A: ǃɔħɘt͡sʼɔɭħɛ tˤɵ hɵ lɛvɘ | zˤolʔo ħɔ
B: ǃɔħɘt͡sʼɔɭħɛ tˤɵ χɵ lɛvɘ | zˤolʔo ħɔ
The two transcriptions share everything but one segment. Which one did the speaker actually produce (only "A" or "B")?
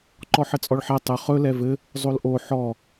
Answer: B